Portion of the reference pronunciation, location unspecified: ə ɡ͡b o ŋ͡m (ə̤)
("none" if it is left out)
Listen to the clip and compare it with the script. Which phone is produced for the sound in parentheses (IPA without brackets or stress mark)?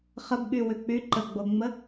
ə